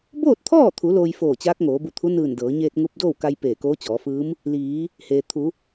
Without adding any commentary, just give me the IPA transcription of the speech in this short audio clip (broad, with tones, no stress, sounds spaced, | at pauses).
b oː˥˨ t̚ t̪ʰ ɔː˥˨ t̪ʰ u˩˧ l oː˧ j f oː˧˩ t͡ɕ aː˧˥ k̚ ŋ oː˩˧ b u˧˩ t̪ʰ u˧˥ n ɯː˧˩ n d ɤː˩˧ ɲ eː˧ t̚ ŋ u˧ p̚ d oː˥˨ w k a˧ j p eː˧˩ k oː˧˥ t͡ɕ ɔː˩˧ f ɯː˧˥ m | l iː˩˧ | h eː˩ t̪ʰ u˩˧